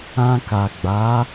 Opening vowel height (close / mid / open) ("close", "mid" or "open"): open